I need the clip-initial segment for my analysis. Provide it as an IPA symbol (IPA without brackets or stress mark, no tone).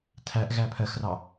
tʰ